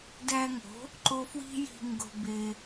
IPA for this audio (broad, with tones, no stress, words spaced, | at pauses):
dæ˧ŋo̤˩˥ | ǃo˧ fwi̤˥ji̤˧ ŋɡo̤˧be˧